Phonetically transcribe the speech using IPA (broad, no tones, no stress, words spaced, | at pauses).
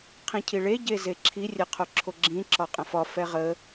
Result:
qʰĩcʰiɭe ɟezeǁʰi rʲɛqʰoǁʰoɡ͡ǁĩ ǁɒqʼə̃fɒ fɛʁə